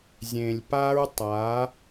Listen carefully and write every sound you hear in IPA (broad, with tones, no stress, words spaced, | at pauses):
zʲẽ˨lʲpa˦ɹtˤa˨˦